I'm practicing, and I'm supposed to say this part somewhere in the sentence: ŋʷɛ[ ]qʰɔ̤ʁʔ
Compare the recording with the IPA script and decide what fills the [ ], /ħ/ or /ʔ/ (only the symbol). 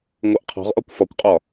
ʔ